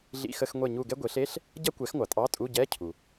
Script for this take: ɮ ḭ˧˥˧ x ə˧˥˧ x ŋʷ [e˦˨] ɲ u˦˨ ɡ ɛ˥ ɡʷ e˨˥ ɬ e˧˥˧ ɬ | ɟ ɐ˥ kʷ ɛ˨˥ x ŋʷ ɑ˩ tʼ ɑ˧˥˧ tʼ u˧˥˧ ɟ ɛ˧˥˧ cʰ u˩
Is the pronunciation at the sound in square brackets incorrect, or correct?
correct